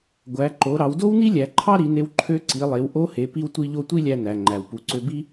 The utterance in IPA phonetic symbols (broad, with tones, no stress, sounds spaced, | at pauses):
ɡʷ æ˩˧ ǃ o˩˧ ɾ ɑ˩˧ w d o˥ w n i˥ lʲ æ˩˧ ǃʰ ɑ˥ ɾ i˩˧ n e˧ w ǃʰ ø˧˥ ǀ i˩˧ lˠ e˩˧ w ʔ o˧˥ h e˩˧ p i˧ w tʷ i˧ ʎ o˧ tʷ i˥ lʲ æ˧ n æ˩ ŋ͡ǃ æ˩ w p u˩˧ ǀ ø˧ b i˥